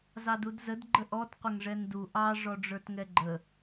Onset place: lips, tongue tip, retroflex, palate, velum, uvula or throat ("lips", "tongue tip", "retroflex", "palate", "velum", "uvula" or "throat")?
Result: tongue tip